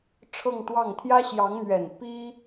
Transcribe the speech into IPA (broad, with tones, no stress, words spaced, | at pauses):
ʈ͡ʂʰɤ˥˧ŋt̪wɑ˥˩ŋ t̪ʰjä˥ɕjɑ˧˥ŋn̪ɥɛ˨˩n pi˥